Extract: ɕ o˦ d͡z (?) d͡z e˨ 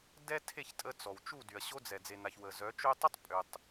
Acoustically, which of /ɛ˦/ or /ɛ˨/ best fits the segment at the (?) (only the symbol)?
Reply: ɛ˨